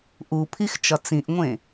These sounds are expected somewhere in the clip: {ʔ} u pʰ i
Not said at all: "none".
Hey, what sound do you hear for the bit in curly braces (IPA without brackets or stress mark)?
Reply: ʔ